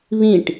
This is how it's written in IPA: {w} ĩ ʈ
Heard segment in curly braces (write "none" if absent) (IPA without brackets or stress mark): β